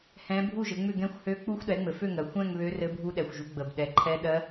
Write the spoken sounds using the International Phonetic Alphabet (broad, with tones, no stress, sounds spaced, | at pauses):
h ɛ̃˦˥ bʱ u˥˧ ʒ ɘ˨˦ ŋ͡m ʏ˥˧ ɡ ɛ̃˦˥ xʷ h ø˦˥ k͡p u˦˥ xʷ ɗ ɛ˨˦ ŋ͡m ɘ˨˩ f ø˥˧ ŋ ɜ˨˩ xʷ ɛ̃˥˧ ŋ β ø˦˥ r ɘ˦˥ bʱ u˦˥ ɗ ɛ˨˩ xʷ ʒ u˨˦ ɡ͡b ə˨˩ b ɗ ɛ˨˦ ǃʰ ɛ˦˥ ɗ ɜ˦˥